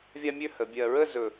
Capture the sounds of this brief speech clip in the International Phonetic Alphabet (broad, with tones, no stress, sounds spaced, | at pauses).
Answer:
vʲ a˥ mʲ ø˥ h ə˩˧ bʲ ɜ˧ ɹ ə˥˧ z ɵ˧˩